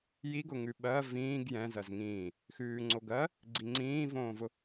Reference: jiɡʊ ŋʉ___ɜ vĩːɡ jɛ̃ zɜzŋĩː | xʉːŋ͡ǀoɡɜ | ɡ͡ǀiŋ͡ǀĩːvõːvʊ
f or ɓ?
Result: ɓ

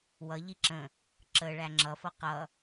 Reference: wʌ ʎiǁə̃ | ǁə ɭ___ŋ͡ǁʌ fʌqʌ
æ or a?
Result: æ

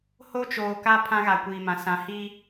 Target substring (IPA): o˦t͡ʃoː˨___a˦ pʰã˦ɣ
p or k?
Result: k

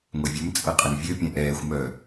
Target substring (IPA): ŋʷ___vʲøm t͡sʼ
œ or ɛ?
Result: ɛ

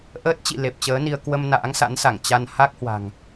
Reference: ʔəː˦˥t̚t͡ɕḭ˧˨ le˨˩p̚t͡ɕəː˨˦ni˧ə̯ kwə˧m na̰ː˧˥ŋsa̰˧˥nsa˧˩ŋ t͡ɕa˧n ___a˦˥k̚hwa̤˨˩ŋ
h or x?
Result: h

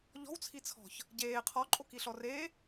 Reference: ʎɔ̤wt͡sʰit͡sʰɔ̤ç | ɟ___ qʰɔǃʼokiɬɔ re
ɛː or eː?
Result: eː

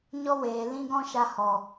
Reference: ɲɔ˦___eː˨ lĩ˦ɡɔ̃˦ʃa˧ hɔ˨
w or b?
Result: w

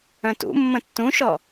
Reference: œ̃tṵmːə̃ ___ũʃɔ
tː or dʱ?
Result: tː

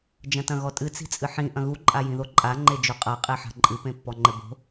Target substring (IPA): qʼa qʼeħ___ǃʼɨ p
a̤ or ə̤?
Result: a̤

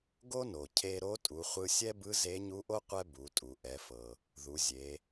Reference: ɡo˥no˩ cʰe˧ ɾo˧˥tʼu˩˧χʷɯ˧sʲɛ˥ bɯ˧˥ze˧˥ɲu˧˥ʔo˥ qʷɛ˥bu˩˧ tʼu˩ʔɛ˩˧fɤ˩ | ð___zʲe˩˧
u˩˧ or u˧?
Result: u˩˧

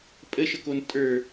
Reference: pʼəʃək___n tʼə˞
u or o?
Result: o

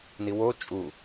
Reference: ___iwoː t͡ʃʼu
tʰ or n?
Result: n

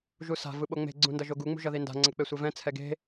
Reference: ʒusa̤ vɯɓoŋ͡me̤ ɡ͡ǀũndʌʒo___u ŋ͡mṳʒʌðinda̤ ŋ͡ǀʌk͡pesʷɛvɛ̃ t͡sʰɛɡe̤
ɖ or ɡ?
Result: ɡ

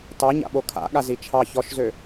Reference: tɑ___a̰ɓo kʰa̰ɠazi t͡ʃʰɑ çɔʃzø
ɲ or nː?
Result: ɲ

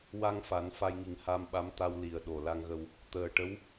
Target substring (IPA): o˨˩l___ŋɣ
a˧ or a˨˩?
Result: a˧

